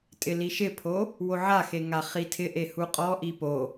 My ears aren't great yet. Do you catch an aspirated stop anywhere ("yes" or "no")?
yes